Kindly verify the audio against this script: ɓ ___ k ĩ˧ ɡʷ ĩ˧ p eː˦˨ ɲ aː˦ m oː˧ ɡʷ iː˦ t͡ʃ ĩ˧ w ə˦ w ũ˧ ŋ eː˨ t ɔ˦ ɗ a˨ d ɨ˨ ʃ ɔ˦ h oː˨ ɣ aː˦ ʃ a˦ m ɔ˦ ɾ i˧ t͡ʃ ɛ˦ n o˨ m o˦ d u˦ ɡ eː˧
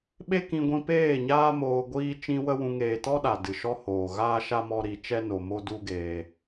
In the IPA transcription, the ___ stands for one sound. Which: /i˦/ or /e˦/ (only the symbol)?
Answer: e˦